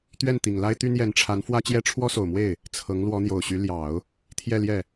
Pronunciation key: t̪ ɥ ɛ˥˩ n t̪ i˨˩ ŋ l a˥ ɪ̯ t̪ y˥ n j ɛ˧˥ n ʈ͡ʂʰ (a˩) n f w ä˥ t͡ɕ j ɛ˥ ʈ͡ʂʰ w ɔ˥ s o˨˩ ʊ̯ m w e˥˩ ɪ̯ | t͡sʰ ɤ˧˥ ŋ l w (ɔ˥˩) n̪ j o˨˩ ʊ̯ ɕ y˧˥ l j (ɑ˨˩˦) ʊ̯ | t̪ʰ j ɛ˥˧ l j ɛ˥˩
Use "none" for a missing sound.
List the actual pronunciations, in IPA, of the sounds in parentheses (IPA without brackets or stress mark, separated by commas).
a˧˥, ɔ˧˥, ɑ˨˩˦